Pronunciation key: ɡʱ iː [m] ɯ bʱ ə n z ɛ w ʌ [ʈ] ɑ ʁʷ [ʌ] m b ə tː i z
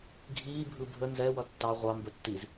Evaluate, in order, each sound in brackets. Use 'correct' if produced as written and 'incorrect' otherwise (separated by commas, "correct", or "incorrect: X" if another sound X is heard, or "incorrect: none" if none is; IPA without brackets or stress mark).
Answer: incorrect: bʱ, incorrect: tː, incorrect: ɑ